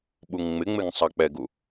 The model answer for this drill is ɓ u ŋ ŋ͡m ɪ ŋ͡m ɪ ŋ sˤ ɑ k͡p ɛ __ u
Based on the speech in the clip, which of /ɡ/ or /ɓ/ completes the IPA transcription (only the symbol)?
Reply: ɡ